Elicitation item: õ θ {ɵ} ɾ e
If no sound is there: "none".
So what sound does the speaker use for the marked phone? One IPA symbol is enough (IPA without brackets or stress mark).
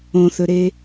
ɵ